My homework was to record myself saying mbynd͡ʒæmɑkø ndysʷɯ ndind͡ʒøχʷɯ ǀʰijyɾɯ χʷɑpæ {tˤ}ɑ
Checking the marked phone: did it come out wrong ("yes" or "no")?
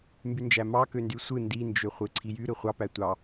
yes